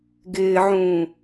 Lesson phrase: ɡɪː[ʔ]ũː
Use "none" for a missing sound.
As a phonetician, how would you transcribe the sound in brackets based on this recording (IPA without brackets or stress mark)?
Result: ʕ